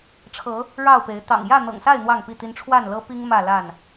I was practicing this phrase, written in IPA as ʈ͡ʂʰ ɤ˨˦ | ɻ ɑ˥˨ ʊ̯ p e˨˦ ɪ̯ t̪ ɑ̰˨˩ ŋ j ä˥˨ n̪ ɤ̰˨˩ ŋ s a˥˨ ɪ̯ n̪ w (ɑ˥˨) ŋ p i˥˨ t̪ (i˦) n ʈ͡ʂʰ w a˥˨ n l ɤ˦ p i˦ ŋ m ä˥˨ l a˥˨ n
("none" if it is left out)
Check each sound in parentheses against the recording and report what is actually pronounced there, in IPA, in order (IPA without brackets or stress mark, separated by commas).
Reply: ɑ˥˨, i˦